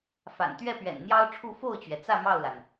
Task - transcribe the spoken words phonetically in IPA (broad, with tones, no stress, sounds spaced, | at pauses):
f a̰˨˩ n t̪ ɥ ɛ˥˩ p ɥ ɛ̰˨˩ n n̪ j ɑ˥ ʊ̯ ʈ͡ʂʰ u˥˧ f o˥˩ ʊ̯ t͡ɕ ɥ ɛ˩ t͡s ä˥˧ m ɑ˥˩ ʊ̯ l a˩ n